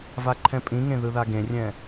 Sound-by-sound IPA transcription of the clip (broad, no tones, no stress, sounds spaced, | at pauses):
v a ǃʰ ɛ̃ pʼ ĩ ŋ ẽ ð ɯ ð a ɡ ẽ rʲ ɛ̃